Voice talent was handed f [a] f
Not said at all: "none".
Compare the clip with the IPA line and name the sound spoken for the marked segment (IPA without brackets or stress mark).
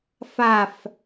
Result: a